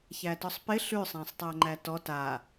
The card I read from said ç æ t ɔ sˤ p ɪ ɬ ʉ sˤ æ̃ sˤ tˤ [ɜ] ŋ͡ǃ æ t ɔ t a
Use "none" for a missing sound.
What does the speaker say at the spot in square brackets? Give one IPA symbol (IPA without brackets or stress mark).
æ